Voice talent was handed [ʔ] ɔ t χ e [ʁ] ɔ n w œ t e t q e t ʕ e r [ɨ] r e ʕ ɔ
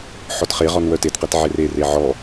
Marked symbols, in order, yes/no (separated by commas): no, yes, no